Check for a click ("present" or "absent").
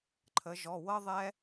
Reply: present